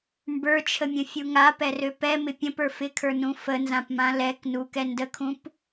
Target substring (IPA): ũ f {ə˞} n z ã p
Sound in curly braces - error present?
yes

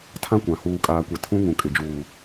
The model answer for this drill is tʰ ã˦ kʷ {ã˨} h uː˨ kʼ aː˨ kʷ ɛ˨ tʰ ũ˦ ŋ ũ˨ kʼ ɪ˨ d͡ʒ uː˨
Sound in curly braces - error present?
no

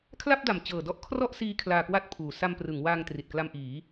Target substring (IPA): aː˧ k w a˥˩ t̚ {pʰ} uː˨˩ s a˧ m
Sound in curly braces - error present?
no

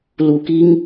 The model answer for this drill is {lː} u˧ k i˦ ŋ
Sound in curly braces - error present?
yes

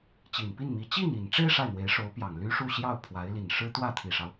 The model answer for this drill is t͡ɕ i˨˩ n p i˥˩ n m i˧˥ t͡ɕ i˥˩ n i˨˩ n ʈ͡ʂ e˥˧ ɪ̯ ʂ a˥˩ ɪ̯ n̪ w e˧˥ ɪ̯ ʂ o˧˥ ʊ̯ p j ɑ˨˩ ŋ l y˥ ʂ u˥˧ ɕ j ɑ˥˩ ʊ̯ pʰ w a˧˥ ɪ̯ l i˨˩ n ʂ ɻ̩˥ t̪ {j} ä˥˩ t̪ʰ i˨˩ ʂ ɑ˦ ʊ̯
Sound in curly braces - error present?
yes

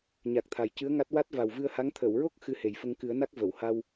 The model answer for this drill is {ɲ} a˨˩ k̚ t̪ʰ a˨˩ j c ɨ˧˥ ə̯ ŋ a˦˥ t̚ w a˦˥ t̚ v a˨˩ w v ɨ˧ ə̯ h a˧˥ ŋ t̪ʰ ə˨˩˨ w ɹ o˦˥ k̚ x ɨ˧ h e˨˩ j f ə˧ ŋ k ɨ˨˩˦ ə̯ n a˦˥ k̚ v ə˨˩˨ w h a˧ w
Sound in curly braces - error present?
no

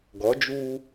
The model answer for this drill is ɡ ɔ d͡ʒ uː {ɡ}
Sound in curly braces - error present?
yes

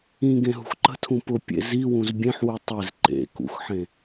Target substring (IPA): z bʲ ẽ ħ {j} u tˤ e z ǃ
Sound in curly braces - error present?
yes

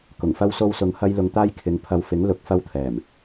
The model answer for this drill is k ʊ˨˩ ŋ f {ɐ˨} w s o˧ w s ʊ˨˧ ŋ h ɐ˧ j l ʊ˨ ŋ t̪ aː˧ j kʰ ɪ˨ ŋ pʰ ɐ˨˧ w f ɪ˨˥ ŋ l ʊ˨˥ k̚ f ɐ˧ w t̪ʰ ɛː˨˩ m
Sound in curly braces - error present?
yes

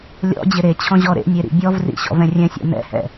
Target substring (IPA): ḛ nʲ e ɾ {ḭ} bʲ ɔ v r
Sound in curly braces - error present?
no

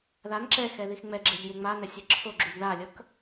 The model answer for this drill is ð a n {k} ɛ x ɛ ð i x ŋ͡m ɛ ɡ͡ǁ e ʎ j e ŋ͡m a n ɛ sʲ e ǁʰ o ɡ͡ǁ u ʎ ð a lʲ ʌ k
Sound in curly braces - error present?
yes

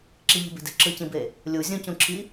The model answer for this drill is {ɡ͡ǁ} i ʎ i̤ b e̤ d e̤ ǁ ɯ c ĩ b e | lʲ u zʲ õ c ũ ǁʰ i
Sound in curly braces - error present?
yes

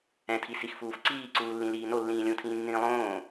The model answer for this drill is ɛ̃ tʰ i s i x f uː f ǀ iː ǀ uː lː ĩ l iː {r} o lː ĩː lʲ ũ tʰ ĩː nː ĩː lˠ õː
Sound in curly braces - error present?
yes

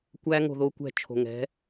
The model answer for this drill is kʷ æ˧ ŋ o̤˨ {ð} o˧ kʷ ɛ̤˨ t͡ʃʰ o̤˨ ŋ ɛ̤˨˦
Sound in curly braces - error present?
no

